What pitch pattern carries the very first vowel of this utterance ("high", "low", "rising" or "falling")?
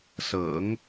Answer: low